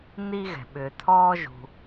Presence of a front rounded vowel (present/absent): present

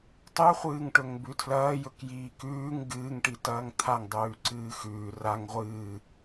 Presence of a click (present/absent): present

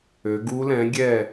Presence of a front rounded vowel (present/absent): present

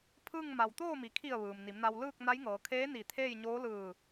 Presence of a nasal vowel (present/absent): absent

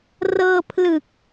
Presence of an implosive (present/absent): absent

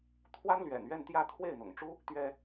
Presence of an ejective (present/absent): absent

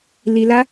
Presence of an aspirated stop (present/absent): absent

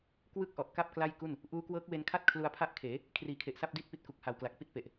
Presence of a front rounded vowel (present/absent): absent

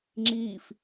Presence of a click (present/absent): present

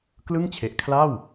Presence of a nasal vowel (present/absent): absent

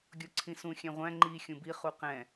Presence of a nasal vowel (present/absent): present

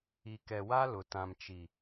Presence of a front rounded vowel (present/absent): absent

